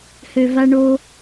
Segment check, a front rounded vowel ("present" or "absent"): present